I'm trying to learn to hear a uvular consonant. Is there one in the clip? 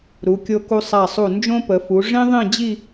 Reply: no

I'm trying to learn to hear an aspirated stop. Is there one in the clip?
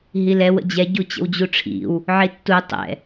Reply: yes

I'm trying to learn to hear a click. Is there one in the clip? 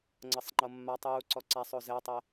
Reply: yes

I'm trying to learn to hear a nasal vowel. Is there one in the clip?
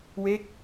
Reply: no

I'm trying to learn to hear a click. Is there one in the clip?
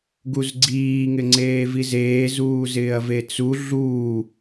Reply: yes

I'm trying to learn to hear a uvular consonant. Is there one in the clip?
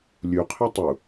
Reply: yes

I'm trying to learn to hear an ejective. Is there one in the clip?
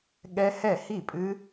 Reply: yes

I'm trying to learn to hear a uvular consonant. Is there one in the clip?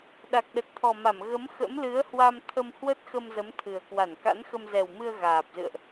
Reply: no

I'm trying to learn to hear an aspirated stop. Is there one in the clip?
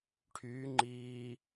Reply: yes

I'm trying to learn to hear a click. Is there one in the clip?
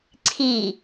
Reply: yes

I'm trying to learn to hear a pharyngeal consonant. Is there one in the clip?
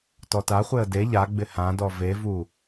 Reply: no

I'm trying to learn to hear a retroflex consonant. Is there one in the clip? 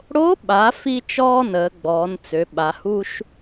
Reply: yes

